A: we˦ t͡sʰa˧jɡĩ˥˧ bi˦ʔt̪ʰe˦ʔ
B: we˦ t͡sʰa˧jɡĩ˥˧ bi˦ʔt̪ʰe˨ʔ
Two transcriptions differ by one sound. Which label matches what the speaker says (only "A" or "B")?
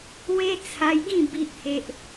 A